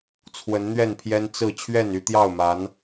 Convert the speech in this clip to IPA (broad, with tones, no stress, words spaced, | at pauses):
t͡sʰwə˨˦nn̪ɥɛ˥˨npʰjɛ˦n t͡sɹ̩˥˨ t͡ɕʰɥɛ˥˨ny˦t̪jɑ˥˨ʊ̯ma˨˦n